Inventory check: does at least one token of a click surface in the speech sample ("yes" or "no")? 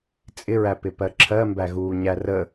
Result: yes